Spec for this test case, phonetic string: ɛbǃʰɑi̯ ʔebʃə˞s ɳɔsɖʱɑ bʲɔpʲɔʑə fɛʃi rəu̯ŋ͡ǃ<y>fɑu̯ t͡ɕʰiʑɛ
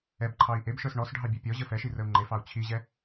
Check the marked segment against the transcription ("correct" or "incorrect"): incorrect